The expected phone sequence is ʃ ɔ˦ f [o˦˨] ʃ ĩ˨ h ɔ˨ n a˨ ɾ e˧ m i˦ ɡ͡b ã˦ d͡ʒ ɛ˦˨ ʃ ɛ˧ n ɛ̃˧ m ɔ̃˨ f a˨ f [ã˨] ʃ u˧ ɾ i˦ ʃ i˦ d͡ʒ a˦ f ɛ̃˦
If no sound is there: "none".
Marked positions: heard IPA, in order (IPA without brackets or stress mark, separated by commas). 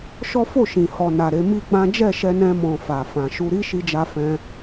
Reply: o˦˨, ã˨